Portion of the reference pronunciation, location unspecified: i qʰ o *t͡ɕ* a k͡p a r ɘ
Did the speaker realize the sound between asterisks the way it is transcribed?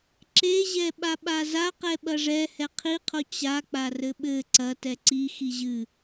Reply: yes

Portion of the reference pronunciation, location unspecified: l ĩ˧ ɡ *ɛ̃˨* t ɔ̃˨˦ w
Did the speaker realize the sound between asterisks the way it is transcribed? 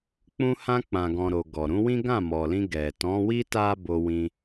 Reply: no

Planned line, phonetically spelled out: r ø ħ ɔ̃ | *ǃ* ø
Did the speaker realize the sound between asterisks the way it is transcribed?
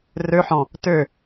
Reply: no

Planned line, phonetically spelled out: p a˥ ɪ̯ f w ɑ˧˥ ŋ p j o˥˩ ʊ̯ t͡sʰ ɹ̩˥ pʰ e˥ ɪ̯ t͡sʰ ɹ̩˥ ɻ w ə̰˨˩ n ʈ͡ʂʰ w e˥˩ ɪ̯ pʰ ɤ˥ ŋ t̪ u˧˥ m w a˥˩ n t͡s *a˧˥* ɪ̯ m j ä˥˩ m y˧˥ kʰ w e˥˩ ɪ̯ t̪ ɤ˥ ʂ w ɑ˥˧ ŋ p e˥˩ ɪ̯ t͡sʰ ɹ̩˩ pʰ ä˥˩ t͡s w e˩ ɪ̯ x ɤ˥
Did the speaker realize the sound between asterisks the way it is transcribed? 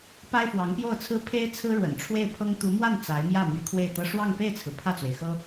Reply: yes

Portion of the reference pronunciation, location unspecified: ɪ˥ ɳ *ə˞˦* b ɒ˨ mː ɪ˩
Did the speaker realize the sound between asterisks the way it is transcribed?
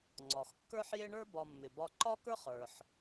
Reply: no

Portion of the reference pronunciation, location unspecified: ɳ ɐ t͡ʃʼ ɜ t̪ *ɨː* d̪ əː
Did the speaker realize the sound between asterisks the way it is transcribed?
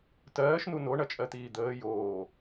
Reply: no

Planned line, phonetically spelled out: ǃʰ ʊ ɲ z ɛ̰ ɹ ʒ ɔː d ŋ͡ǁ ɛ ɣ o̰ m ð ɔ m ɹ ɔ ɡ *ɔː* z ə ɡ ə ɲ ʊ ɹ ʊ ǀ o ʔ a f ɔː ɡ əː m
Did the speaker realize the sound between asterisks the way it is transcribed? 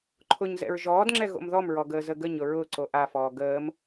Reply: no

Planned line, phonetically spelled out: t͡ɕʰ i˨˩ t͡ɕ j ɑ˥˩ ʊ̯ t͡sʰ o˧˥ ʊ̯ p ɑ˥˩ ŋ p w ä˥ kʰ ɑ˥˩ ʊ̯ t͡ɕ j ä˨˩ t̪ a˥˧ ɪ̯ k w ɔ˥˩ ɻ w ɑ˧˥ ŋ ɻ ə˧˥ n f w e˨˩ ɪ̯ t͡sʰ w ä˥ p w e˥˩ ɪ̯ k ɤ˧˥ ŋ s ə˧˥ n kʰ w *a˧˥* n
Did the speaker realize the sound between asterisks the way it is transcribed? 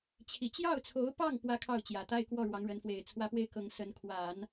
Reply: no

